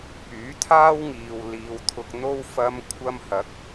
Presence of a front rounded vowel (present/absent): present